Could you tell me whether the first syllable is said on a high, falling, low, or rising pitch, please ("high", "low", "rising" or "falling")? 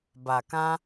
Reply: low